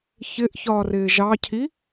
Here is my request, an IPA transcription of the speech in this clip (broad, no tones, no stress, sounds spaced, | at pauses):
ç ɪ ʔ ç ɒː r ɪː ʒ ɑ cʰ i